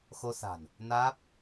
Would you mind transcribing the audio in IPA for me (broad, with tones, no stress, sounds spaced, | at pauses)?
x o˧ s a̤˨˩ n | n aː˦˥ p̚